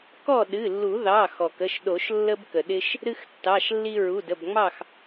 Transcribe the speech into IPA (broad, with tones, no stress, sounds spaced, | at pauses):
k ɔ˥˨ ɗ ɨ˩˧˩ lː u˨˩˦ ð ɑ˩˧˩ x ɔ˩ k ə˩˧˩ ʃ ɗ o˨˩˦ ʃ lː ə˦ b k ə˩ ɗ ɪ˦ ʃ | ɾ ɨ˦ x tː ɑ˩˧˩ ʃ lː i˦ ɹ u˩˧˩ d ə˩˧˩ b ŋ͡m ɑ˥˨ x